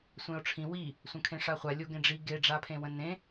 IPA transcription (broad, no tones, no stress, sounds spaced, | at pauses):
sʷ ẽ o̯ ʈ͡ʂʰ ĩ w i | sʷ ə̃ kʰ ẽ ʂ a χʷ a lʲ o ɡ ẽ ɖ͡ʐ i ɡ e ɖ͡ʐ a pʰ ẽ w ə̃ n ẽ